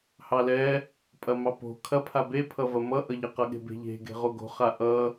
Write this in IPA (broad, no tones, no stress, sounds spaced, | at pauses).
h ɑ l ɛ | pʼ ɐ m ɑ p o̤ kʰ ɐ pʰ a b e pʰ ʌ v ɐ m ʌ ʔ ʌ ʎ ɐ q ʌ ɠ e̤ b e̤ ʎ e̤ ɡ e̤ ʁ o ɡ o̤ χ a ʔ ʌ